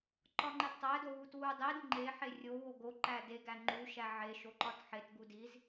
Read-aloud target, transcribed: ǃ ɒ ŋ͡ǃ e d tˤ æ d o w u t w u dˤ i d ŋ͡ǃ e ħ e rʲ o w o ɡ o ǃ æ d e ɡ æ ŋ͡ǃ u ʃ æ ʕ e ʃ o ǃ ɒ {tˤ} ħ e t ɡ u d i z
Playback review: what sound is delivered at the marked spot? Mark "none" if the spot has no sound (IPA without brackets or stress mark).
t